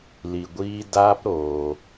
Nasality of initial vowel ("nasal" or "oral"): oral